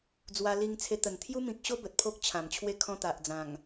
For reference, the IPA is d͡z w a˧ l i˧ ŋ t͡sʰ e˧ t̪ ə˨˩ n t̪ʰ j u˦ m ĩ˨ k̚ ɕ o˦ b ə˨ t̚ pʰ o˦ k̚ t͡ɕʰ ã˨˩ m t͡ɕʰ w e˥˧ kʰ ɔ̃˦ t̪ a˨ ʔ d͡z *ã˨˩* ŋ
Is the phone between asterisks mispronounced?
no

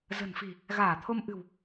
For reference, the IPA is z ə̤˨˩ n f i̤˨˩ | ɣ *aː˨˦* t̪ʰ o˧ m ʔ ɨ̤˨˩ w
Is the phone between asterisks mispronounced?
yes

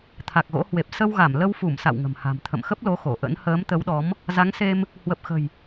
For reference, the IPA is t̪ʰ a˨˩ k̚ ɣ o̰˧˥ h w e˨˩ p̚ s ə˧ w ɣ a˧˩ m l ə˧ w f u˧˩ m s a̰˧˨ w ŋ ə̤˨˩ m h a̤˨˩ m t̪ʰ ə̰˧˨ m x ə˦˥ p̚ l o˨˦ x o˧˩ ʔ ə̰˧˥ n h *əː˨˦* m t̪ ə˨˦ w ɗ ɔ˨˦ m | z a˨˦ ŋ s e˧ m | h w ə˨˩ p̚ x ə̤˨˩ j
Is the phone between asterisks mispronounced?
no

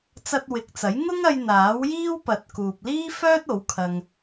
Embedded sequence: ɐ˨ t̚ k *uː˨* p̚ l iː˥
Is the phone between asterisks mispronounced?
no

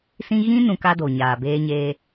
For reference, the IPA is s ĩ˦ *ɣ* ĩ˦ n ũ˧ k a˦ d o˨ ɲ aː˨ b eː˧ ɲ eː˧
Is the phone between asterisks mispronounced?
no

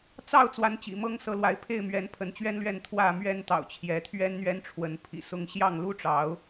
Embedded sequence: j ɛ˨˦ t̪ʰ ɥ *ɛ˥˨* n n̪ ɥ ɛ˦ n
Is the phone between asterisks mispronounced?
yes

